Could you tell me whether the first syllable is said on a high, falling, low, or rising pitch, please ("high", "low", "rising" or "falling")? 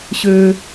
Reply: high